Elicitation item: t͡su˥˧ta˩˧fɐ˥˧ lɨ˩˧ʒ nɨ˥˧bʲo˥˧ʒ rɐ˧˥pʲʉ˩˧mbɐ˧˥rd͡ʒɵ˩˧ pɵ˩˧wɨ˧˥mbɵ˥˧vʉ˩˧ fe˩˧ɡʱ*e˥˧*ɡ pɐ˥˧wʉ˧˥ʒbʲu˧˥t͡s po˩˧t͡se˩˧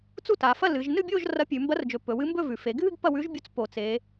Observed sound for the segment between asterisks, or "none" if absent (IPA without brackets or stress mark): ɨ˥˧